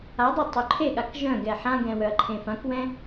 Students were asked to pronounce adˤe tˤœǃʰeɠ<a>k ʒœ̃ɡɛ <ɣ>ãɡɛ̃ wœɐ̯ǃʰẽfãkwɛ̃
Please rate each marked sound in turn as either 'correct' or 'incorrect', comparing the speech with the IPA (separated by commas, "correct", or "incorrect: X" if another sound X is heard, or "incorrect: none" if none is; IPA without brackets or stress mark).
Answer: correct, incorrect: ħ